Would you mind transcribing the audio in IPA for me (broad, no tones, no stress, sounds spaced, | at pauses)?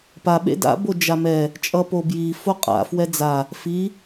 p a ɓ ḛ d a̰ b o d͡ʒ a m ɛ | t͡ʃʼ ʌ p o b j i f o qʼ a̰ f w ɛ d͡z a | f i